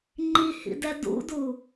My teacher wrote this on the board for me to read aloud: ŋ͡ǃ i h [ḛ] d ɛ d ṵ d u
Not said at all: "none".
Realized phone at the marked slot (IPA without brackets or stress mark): ḭ